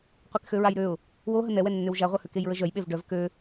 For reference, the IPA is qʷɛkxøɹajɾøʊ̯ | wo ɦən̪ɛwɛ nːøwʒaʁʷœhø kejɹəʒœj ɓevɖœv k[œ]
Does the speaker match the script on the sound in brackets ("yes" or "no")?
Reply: no